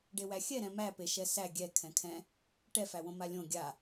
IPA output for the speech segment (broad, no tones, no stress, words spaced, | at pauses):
ɖewæxʲɛ ɾɛ̃mæ peʃɛsæ ɡʲɛ kʰɛ̃kʰɛ̃ | ʈɛfæwõ malʲõ ɡʲa